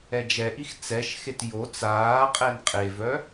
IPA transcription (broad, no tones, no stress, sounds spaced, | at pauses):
ɛ d͡ʒ ɛ ʔ i x t͡s ɛ ʃ x e t j o t͡s aː qʼ ɛ n qʼ e v œ